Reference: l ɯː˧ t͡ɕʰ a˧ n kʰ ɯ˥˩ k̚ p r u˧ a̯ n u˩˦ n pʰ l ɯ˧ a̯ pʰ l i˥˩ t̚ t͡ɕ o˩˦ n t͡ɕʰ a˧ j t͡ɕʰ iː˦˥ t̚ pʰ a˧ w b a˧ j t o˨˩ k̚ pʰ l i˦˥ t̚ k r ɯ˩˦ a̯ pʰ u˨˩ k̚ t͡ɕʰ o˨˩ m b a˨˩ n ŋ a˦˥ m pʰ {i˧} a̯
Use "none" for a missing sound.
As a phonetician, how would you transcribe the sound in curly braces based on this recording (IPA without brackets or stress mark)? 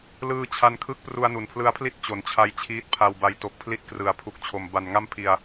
i˧